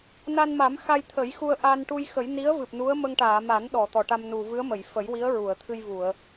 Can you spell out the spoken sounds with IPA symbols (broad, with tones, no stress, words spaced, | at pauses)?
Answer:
na˧nma˨˩˦m xa˧jt̪ʰə˨˩˦jxu˧ə̯ ʔa˧nʈu˧jxə˨˩˦j ni˧˥ə̯vɨ˨˩p̚ nu˧˥ə̯ mə˧ŋʈaː˨˩˨ma˨˩˦n ɗɔ˨˩˨t̪ɔ˨˩˨ʈa˧mnu˨˩ vɨ˧˥ə̯mə˨˩˨jfə˨˩˦jwi˧˥ə̯ ɹu˨˩˨ə̯t̪ʰɨ˧jvu˨˩˨ə̯